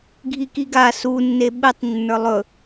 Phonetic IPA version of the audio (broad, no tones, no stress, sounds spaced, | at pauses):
ɡʱ i k i ɡ a s u nː e ɓ e tˤ nː ə˞ lˠ ɵ